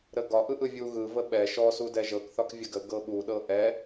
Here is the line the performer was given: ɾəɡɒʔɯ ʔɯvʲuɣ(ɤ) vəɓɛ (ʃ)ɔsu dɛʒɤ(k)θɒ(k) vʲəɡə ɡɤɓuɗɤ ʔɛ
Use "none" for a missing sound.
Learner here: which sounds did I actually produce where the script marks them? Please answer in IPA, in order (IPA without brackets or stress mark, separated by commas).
ɯ, ʃ, k, k